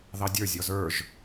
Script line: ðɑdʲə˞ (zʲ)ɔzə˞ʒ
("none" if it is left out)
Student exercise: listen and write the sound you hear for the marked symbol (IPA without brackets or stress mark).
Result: zʲ